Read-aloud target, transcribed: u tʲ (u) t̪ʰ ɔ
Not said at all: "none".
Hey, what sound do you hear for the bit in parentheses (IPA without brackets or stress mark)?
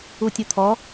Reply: u